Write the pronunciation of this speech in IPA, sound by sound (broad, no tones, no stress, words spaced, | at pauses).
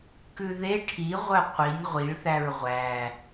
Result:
kʉðe ʈʰiʁʷœ qʷinʲ ʁʷiɭθæɹ ʁʷæ